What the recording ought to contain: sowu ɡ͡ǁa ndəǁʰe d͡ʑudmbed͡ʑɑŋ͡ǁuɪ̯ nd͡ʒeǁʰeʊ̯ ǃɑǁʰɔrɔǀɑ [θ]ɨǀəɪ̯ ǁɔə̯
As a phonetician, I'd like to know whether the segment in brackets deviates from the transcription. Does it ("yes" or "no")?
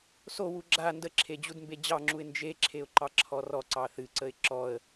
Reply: no